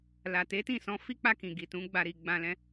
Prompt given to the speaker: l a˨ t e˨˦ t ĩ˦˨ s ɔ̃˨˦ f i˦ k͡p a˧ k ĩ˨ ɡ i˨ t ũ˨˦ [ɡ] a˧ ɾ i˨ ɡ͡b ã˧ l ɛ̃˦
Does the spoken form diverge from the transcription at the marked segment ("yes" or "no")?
yes